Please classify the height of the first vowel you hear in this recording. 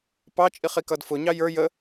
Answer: low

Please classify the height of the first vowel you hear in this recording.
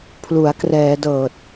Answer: high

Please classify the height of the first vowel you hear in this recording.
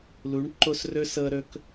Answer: high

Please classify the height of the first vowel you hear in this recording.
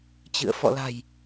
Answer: high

